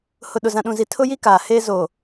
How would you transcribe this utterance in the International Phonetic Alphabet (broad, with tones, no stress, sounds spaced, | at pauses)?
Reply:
h ʊ˨ ɗ ʊ˨ z ã˨ ɗ ũ˨ z i˨ tʰ ʊ˦ j i˦ k aː˨ h eː˦ z o˨